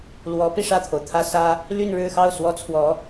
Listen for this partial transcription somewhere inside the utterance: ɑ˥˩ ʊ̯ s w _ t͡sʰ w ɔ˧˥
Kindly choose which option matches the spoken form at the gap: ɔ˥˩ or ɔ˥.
ɔ˥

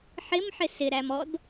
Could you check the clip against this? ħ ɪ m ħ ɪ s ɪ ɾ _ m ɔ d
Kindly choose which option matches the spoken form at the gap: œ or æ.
æ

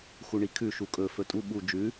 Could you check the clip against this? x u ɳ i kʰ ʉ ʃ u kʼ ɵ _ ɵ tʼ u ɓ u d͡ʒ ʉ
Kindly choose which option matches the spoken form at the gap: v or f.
f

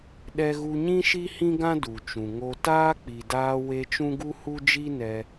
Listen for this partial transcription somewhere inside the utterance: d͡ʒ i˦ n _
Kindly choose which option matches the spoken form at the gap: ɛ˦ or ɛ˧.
ɛ˧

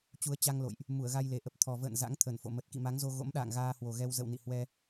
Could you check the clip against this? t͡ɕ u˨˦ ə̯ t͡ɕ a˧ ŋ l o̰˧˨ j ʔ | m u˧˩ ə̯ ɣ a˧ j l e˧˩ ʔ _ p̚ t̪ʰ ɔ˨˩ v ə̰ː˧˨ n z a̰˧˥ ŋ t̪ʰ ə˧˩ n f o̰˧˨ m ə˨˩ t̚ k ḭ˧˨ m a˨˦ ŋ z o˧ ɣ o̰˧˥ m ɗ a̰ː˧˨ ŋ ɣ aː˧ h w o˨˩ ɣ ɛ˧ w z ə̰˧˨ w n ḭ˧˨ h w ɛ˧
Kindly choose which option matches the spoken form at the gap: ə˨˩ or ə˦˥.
ə˨˩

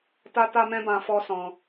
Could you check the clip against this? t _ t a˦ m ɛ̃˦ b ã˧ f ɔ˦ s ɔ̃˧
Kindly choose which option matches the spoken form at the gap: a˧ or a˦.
a˦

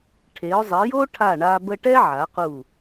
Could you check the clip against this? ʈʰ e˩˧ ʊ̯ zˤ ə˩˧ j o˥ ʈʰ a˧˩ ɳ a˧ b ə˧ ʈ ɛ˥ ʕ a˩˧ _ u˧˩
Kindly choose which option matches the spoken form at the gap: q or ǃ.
q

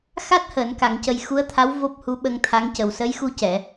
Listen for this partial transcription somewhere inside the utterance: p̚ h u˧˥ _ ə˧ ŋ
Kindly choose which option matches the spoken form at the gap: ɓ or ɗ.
ɓ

